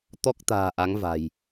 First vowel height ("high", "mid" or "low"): mid